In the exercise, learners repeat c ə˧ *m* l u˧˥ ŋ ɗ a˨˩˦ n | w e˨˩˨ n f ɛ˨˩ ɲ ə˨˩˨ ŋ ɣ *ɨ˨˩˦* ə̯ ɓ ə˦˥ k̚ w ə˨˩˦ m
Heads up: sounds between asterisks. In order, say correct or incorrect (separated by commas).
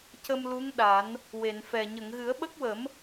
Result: correct, correct